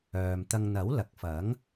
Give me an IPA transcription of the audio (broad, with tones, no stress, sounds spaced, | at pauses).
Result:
œː˨ m t̪ ɐ˧ ŋ n̪ ɐ˨˥ w l ɐ˨ k̚ f ɐ˨˥ ŋ